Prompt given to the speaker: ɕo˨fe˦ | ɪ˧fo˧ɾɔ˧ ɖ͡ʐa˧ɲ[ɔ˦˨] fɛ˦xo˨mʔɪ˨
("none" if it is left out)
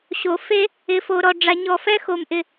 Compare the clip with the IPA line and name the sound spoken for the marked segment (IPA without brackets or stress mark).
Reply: ɔ˦˨